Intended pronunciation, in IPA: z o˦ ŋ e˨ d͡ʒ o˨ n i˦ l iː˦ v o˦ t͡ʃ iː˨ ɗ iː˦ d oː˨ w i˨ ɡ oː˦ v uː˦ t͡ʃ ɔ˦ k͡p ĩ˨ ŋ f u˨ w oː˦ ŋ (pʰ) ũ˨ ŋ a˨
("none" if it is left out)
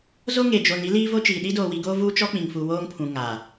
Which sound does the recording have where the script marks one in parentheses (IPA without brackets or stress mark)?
pʰ